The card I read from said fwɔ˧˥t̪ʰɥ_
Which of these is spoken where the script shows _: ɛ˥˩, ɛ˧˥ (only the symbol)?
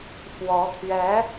ɛ˧˥